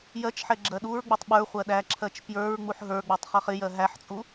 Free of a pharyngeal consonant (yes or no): no